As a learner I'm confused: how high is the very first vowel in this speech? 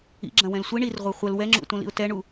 high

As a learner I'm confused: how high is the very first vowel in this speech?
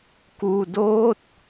high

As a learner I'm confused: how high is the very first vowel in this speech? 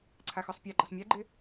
low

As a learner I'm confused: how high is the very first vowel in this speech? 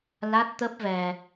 low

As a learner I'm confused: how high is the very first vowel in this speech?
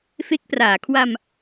mid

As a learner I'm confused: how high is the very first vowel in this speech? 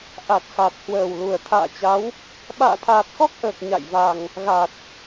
low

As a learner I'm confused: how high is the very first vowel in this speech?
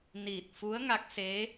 high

